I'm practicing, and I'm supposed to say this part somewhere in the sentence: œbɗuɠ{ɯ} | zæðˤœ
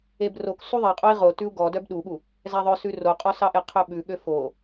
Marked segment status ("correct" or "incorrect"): incorrect